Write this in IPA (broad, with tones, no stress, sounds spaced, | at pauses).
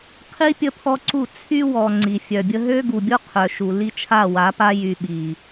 qʰ i˦ pʲ ə˦ pʰ ɔ˦ ǀ u˦˨ t͡sʰ y˦ w ɔ˨ ŋ͡ǀ i˨ fʲ œ˨ bʲ ə˦ ɦ ø˦ ɡ u˨ bʲ o˦ qʰ œ˨ ʃ u˨ l i˦ t͡ʃʰ a˦˨ w a˨˦ p a˦ j y˨ ɓ i˨